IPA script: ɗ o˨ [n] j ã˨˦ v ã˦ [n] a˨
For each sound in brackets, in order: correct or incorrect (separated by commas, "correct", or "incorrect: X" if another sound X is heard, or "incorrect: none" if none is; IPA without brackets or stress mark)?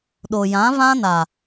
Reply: incorrect: none, correct